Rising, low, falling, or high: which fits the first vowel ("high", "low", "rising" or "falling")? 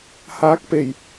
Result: rising